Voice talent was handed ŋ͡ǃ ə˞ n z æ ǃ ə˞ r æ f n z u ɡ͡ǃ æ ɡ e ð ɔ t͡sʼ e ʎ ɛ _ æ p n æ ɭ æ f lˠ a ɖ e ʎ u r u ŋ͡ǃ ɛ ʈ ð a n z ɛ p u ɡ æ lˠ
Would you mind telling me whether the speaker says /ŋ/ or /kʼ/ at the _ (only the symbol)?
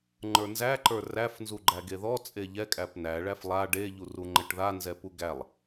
kʼ